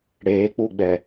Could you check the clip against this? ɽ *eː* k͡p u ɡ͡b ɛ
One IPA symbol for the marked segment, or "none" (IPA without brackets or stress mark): eː